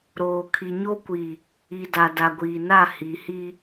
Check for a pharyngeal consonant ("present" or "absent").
absent